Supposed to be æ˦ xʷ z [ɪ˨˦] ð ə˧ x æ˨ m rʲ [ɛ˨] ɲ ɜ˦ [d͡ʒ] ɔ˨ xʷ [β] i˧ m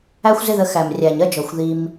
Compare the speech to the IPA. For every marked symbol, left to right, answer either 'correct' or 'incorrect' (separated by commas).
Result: incorrect, incorrect, correct, incorrect